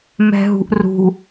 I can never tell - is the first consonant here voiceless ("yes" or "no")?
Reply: no